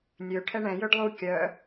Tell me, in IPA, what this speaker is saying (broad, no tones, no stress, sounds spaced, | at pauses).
nʲ ø ʈʰ ɛ ɳ ɛ̃ j ø ɖ lˠ u kʲ œ